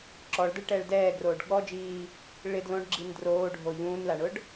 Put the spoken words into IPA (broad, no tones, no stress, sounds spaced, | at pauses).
ǁ ɔ ɭ d ɛ ɭ ʈ ɛː ɭ d ɛː ɡ r oː ɖ ɠ ɔ d͡ʒ iː | ɭ ɪ d l õ ɖ ɡ͡ǁ i n d r oː ɖʱ o ʎ ũː n l a ɳ ʊ ɖ